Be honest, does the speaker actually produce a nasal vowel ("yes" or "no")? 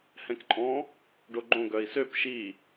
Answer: yes